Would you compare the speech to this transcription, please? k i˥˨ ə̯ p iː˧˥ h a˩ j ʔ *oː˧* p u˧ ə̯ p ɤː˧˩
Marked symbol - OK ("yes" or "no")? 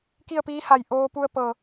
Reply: yes